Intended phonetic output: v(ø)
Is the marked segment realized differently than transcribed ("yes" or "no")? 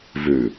yes